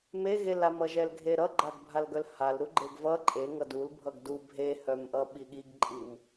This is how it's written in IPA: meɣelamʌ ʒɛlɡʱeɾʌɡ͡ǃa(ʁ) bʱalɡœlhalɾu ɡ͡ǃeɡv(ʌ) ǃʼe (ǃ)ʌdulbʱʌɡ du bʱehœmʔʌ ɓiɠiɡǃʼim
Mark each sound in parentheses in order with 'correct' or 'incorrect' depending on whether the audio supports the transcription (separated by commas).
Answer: incorrect, correct, incorrect